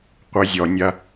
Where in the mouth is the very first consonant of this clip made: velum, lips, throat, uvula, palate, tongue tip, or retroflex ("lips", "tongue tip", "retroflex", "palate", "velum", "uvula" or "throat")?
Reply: uvula